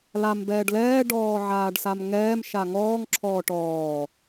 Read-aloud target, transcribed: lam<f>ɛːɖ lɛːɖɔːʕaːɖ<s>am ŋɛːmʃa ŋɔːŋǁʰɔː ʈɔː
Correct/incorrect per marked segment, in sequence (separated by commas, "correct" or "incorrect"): incorrect, correct